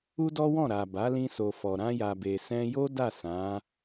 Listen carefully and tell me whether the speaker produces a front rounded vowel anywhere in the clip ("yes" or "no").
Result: no